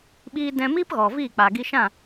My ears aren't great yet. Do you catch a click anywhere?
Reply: no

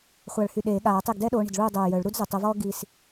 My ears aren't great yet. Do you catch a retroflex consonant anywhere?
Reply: yes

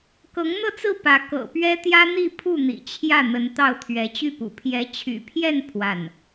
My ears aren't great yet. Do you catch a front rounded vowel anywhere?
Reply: yes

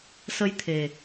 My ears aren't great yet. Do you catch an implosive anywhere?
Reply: no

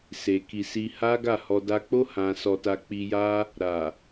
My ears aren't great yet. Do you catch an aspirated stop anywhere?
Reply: no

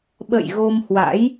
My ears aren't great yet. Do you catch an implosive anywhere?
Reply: yes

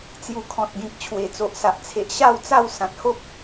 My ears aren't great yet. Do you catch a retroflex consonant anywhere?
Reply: no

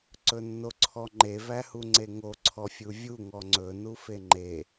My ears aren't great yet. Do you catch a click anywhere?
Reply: yes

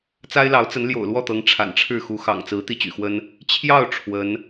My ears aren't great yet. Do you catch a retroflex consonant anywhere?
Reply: yes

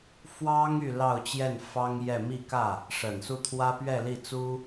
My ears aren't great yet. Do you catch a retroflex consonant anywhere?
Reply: yes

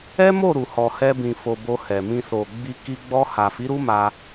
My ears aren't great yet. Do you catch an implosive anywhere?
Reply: no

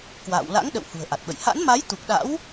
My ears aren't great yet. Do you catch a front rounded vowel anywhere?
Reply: no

